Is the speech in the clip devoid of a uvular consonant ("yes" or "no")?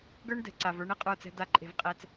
no